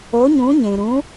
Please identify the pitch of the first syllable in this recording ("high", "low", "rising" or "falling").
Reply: rising